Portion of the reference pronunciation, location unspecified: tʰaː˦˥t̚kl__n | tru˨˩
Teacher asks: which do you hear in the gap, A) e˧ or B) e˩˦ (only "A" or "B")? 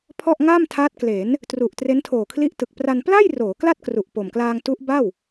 B